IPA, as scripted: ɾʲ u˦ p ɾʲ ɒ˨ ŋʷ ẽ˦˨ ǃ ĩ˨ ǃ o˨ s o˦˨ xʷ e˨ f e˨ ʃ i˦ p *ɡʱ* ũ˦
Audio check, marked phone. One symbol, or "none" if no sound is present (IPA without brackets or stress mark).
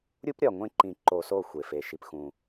x